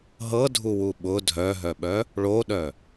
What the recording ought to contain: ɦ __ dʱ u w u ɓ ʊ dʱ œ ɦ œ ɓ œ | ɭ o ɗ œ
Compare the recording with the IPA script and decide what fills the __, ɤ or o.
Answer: ɤ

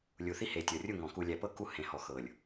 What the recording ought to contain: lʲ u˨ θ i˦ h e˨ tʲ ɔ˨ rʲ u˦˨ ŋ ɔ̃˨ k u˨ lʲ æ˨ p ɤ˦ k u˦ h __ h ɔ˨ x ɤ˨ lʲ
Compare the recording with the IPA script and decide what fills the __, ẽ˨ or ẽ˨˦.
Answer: ẽ˨˦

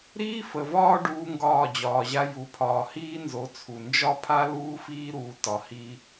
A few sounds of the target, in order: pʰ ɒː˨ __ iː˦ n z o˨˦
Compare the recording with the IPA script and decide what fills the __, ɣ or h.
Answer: h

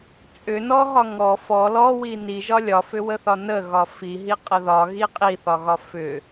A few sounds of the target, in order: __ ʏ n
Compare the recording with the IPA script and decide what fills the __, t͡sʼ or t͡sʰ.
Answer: t͡sʼ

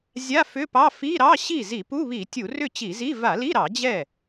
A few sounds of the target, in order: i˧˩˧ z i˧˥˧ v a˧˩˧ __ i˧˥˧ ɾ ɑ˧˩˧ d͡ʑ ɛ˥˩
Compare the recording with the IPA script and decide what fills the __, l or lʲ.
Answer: l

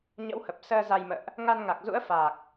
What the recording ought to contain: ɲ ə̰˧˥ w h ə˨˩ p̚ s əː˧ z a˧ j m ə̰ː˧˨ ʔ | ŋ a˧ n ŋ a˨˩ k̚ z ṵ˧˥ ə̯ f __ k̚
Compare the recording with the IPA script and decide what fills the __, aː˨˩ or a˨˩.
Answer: aː˨˩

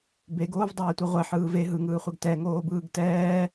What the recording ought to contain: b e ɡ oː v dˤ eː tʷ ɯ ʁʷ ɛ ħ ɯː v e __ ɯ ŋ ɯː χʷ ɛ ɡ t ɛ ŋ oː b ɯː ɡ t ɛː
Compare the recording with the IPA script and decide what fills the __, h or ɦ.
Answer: ɦ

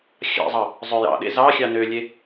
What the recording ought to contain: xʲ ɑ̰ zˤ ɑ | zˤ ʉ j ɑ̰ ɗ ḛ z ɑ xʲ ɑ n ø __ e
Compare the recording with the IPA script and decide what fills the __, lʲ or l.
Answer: lʲ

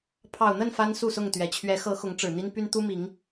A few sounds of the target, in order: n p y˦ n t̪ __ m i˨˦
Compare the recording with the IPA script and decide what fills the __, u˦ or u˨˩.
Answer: u˦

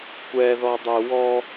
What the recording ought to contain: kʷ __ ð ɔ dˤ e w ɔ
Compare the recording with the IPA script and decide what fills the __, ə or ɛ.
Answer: ɛ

